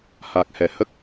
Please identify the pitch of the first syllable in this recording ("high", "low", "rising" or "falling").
low